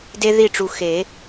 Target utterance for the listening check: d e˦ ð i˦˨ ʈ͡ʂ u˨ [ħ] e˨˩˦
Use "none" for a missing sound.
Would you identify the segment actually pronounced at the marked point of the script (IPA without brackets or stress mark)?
x